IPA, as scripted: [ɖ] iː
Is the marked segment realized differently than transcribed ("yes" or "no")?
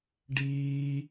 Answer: no